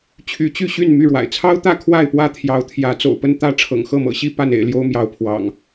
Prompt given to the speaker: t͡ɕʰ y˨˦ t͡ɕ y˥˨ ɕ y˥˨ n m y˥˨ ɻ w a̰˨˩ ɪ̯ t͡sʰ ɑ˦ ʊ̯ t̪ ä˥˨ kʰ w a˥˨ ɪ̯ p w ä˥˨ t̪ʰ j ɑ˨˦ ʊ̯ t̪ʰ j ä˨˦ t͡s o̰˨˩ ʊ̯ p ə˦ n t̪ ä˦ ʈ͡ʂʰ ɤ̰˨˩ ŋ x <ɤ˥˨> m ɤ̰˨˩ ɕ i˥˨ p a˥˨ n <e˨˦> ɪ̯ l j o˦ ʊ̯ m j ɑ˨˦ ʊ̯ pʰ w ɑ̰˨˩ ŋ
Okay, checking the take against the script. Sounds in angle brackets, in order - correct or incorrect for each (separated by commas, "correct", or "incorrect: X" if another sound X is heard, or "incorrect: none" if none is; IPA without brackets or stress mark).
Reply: correct, incorrect: ḛ˨˩